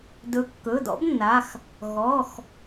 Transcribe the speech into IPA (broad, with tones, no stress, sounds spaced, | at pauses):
d ɵ˨˥ kː ɵ˩˧˩ d ɔ̰˨˥ b nː a˩˧˩ x | ɣ ɔ˩˧˩ x